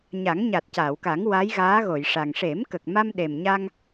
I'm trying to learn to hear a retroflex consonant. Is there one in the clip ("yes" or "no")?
yes